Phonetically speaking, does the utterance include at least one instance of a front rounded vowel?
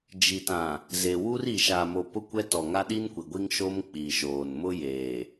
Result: no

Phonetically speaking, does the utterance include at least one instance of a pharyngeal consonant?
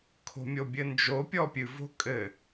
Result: no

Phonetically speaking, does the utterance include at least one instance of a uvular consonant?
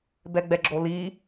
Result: no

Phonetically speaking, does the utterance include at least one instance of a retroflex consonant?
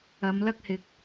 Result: no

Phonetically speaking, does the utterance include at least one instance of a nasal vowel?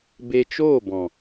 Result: yes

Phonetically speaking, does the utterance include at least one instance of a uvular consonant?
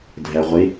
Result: yes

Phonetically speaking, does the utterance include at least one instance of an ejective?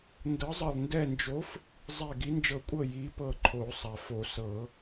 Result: yes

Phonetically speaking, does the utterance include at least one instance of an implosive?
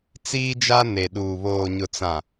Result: yes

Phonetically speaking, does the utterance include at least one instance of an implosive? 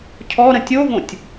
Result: no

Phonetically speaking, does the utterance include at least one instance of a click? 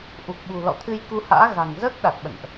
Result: no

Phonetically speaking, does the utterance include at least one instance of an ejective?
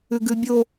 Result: no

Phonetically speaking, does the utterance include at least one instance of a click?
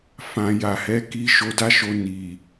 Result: no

